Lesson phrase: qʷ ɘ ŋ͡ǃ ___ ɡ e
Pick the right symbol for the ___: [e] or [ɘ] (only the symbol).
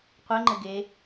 ɘ